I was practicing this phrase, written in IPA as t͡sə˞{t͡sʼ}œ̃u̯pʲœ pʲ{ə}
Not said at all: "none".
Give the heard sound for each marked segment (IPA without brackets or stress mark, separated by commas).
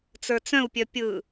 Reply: t͡s, ɯ